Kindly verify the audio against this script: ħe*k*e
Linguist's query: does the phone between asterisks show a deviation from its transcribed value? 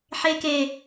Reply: no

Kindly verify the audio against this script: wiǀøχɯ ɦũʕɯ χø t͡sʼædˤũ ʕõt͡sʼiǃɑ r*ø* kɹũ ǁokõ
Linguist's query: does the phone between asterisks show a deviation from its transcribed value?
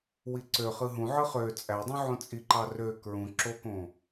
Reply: no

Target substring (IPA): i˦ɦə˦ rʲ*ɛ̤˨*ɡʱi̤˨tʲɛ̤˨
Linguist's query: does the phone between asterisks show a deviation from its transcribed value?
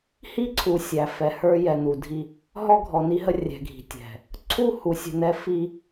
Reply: no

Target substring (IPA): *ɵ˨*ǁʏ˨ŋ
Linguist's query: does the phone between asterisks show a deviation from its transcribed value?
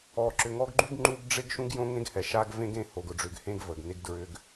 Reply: yes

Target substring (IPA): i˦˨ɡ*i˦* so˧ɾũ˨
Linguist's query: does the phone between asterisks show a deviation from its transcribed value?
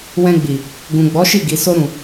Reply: yes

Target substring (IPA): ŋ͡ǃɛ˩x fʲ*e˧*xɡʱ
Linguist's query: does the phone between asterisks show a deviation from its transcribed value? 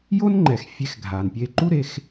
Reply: no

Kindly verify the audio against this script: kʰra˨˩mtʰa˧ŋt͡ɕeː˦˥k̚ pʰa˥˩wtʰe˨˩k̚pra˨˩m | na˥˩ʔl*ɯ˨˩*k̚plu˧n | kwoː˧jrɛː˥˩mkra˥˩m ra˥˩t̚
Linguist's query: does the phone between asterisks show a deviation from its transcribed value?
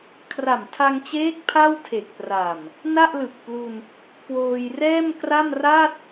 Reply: no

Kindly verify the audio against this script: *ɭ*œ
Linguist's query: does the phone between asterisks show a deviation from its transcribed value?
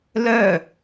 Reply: yes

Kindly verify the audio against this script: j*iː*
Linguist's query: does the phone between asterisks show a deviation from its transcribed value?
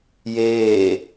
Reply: yes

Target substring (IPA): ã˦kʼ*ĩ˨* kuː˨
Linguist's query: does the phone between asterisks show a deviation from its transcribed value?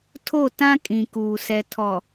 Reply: no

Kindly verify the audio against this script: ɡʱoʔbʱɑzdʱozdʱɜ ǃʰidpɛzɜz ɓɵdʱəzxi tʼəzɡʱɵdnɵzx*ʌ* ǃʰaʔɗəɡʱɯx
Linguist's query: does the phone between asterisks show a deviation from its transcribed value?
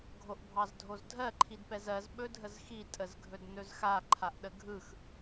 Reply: yes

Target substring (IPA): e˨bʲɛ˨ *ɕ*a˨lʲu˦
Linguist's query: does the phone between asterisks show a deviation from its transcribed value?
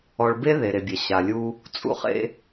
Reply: no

